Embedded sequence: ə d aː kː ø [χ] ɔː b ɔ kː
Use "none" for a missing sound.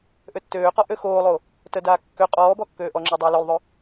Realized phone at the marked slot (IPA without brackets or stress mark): qʼ